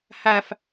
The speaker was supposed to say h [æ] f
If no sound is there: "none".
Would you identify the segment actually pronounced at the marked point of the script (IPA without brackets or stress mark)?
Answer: æ